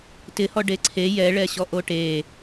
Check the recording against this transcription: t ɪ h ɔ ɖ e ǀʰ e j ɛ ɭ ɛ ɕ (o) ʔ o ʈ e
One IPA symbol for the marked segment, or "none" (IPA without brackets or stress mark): ɔ